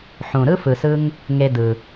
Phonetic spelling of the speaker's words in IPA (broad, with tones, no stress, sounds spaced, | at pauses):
ħ ũ˨ ɾ ɯ˦ f ɯ˨ s ɯ˧ ŋ | ŋ e˧ d ɯ˨